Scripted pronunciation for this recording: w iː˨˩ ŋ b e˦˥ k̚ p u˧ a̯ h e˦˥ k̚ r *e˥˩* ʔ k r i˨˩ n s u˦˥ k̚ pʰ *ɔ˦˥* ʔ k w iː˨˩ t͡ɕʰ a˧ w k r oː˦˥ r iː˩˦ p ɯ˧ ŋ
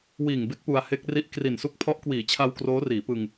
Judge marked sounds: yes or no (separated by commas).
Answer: no, yes